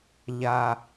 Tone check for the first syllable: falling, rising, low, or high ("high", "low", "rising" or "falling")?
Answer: low